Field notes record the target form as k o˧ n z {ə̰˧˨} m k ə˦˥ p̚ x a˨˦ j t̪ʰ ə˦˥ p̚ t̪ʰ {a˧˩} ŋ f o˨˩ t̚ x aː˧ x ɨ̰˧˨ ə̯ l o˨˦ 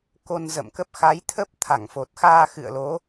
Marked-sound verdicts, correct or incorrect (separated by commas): correct, correct